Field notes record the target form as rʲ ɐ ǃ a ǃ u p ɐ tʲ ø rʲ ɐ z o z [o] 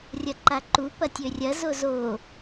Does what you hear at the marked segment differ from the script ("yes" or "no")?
no